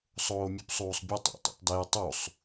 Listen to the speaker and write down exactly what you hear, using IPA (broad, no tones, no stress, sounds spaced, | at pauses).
sˤ oː mʲ u p sˤ uː sˤ bʲ ɒ tˤ o̰ tˤ o̰ tˤ d e j tˤ u sˤ